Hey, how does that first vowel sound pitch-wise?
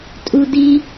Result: high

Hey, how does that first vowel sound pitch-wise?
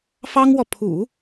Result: high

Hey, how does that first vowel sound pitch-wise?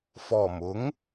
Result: low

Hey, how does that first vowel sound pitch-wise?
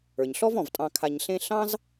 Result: low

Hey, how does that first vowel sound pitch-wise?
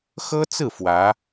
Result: high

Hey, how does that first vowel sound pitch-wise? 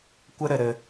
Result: high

